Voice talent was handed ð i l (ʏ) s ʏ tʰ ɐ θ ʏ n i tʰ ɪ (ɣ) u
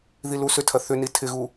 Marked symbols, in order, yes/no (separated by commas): no, yes